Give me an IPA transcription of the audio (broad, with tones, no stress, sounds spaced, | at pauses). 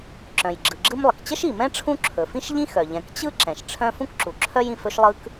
ǁ œ̃˩ j ɡ͡ǁ ɯ˩ ɡ͡ǁ ɯ˥ m lˠ ə˩ k t͡ɕ ə˥ ʃ i˩ m ɛ̃˥ ʈ͡ʂʰ ũ˥ ǁʰ ɵ˩ f ĩ˥ ʃ ʎ ĩ˥ x œ˩ ʎ ɛ̃˩ k t͡ɕ ɯ˥ ǁ ɛ̃˩ ʃ ʈ͡ʂʰ œ̃˥ f ũ˥ k ǁ u˩ ǁʰ œ˥ j ĩ˩ f ɵ˥ ʃ lˠ ɯ˥ k